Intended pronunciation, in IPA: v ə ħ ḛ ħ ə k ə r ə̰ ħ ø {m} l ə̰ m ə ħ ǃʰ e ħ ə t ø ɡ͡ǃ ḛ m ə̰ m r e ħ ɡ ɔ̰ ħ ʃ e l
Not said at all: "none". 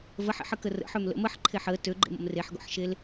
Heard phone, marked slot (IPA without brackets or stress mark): m